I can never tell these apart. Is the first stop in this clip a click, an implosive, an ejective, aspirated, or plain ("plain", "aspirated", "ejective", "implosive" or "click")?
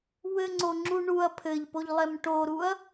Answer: click